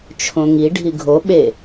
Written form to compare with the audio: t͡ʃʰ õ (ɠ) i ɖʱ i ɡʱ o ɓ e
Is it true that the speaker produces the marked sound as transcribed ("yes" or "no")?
no